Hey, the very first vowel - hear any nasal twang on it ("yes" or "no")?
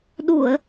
no